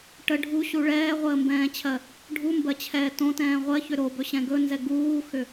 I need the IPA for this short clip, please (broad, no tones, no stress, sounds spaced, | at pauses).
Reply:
ʈ ə ɖʱ u ɕ u ɭ ɛː ʁʷ əː m b ɛ̃ː t͡ɕʰ ɜ | ɖʱ u m b ɜ t͡ɕʰ ɛː t õ t ɛ̃ː ʁʷ ɜ ç ʏ ɾ o b ɵ ɕ ɛ̃ ɡ ɵ n z ɛ ɡ uː x ʏ